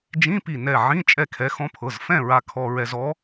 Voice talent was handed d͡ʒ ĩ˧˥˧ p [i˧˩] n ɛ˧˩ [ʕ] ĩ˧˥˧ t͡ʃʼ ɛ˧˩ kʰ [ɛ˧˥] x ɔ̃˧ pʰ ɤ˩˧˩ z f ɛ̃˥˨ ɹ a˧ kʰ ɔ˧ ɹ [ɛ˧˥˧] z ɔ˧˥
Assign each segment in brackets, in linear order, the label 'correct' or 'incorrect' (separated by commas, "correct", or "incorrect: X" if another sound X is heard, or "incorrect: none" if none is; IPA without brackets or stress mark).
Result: correct, correct, incorrect: ɛ˩˧˩, incorrect: ɛ˧